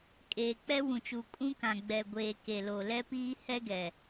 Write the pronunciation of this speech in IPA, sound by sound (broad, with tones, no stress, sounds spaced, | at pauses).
kʼ eː˨ k͡p ɛ˦ w ũ˨ t͡ʃ u˨ kʼ ũ˦ k ã˨ ɡ͡b ɛ˨ ɡʷ eː˨ k e˨ l o˨ l ɛ˦ p iː˦ h ɛ˦ ɡ ɛ˨